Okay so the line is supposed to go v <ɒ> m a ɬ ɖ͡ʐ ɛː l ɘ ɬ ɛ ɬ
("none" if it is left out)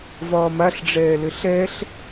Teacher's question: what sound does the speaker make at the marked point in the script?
ɒː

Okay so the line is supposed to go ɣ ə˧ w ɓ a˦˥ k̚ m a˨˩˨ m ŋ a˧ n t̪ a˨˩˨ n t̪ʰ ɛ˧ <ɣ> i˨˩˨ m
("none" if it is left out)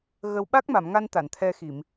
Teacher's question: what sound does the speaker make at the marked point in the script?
x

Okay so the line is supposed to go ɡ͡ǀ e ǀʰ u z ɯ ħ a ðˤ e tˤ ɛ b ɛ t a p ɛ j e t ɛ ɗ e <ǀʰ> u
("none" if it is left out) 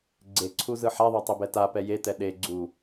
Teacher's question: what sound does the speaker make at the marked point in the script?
ɡ͡ǀ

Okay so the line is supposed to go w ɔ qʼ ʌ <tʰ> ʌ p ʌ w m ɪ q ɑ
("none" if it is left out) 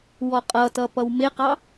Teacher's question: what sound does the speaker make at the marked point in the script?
t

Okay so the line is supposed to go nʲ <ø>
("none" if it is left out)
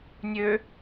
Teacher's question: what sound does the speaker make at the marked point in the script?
ø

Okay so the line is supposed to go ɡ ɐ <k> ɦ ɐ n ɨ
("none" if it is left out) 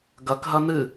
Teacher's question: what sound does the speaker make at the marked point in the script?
k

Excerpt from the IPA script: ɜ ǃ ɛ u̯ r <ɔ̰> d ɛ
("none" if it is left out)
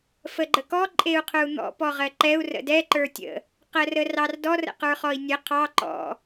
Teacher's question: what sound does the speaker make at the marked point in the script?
ə̰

